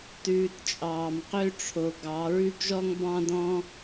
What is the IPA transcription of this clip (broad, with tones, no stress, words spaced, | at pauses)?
tʉː˧tt͡ʃʼɑː˨m qø˦ʈ͡ʂʰo˨ ɡɑ˨˦ ɹʉ˦ɡʒɔ˦ŋ bɑ̃˦dɔ̃˦